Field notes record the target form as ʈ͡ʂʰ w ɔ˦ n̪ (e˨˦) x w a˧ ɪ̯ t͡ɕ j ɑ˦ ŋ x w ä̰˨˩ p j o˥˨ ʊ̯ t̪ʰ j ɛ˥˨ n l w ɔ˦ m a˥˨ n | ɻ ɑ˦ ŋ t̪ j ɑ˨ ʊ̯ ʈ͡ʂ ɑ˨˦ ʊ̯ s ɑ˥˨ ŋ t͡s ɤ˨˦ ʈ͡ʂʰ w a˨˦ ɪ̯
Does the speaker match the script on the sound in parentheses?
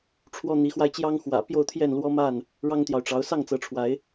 no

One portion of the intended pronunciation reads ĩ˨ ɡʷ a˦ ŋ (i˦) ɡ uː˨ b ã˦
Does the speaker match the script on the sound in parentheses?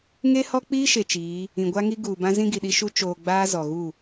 yes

